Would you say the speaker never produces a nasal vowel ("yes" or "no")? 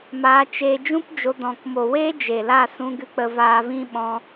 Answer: no